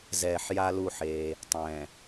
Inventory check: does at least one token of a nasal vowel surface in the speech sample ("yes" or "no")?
yes